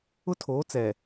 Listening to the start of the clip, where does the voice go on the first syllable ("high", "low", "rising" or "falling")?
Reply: high